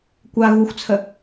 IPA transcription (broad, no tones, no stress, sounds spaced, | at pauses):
kʷ a ɣ u xʷ t͡sʰ ə